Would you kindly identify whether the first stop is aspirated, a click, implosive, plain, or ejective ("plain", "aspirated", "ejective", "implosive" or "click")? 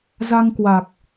plain